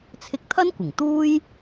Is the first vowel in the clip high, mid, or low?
high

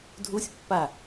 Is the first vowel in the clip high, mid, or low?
high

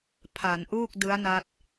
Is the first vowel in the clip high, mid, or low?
low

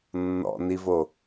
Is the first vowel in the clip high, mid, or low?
mid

